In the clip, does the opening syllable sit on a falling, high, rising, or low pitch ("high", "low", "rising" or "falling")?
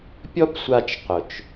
high